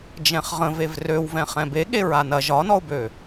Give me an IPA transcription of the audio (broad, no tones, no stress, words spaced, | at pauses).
d͡ʒɛ̃χʁə̃vev røwvɛ̃ χɛ̃beɠe ɹanɐ ʒɒnɔʊ̯bø